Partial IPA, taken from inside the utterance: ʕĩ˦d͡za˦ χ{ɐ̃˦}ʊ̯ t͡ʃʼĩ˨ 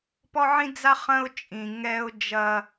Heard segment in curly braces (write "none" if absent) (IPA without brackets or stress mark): ɐ̃˦